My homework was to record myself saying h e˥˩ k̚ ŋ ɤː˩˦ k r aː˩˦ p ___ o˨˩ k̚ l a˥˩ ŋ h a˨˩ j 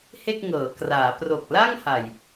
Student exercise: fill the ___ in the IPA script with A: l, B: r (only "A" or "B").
B